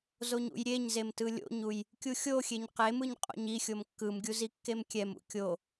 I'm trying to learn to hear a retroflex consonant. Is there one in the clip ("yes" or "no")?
no